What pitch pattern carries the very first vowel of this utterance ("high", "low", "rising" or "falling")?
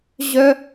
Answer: high